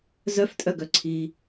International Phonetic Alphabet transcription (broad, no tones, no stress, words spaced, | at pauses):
zœftʼœɡœǀʰiː